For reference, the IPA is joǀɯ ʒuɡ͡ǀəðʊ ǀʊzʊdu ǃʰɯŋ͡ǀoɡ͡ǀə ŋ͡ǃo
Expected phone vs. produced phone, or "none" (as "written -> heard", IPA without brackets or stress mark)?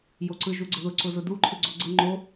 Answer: ŋ͡ǀ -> ɡ͡ǀ